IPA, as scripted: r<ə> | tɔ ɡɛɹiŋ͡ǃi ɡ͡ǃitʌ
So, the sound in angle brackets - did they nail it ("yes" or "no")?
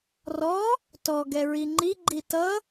no